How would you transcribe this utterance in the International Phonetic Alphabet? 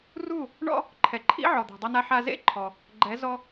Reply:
r u˥˩ | ɳ ɔ̰˥ | ǃʰ ɛ˩ ǃʰ ḭ˥ ʕ ɔ˩ d̪ ɛ̤˩ dˤ ɐ˧ n a˧ ħ a˧ z ḛ˥˩ ǃʰ ɔ˩ | ɡ͡ǃ ɛ˩˥ z ɔ˧

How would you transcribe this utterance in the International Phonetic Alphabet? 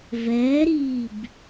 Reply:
v ɛː ɾ iː b

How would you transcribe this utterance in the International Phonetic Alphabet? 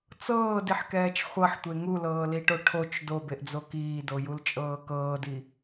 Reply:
t͡s ɤː d i ħ k ɛː t͡ʃ χʷ ɤ ħ tʷ e ŋ u l ɤː l i ʈ o ʈʰ o t͡ʃ d o b e ʔ d͡z o k iː d o j u l t͡ʃʼ ɤː k ɤː d i

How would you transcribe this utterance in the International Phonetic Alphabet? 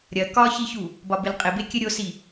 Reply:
ɾʲ ɐ k ɒ ç i ç u | b ɒ b ɪ l qʼ ɪ b e kʲ ɘ ɾʲ o s i

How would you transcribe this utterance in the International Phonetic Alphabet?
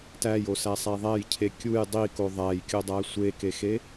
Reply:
t æ j o s æ sˤ æ ðˤ æ j cʰ e kʲ u j dˤ i k o ðˤ æ j kʲ o dˤ æ sʷ e k e x e

